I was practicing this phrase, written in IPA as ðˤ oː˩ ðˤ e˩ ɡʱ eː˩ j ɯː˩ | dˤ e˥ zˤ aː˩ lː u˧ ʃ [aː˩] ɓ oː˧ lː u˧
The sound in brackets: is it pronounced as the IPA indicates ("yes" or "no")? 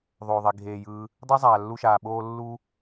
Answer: yes